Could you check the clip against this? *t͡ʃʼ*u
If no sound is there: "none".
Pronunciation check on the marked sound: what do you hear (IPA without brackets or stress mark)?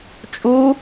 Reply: t͡ʃʼ